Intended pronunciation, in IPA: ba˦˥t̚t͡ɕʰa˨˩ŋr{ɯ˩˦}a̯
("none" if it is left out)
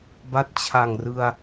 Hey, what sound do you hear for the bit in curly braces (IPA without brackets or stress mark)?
ɯ˧